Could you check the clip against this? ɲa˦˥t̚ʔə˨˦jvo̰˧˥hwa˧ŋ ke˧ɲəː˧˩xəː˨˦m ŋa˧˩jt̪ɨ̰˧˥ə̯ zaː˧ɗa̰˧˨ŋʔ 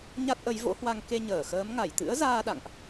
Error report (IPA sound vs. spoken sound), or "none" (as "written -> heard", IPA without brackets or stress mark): none